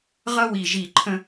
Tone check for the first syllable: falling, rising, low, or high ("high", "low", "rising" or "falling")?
high